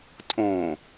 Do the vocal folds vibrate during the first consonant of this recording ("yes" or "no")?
no